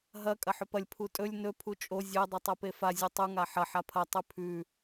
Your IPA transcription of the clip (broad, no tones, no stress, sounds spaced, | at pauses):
ɦ ɐ kʼ ɐ ħ ɵ p ɐ lʲ pʰ u tʼ ɵ lʲ n ɵ pʰ u t͡ʃʼ o zʲ ɵ dˤ ɵ tˤ o p e f a zʲ ʉ tˤ u ŋ a ħ ɐ ħ a pʰ ɐ tˤ ʉ pʰ ʉ